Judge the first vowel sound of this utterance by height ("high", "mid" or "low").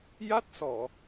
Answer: low